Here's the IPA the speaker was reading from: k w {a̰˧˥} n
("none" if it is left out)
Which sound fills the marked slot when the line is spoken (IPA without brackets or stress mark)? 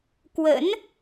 ə̰˧˥